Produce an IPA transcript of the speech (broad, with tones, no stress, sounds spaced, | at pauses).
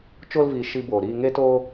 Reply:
t͡ʃ o˧ l v i˨ ʃ i˧ b oː˨ ɾ iː˧ ŋ e˦ t oː˧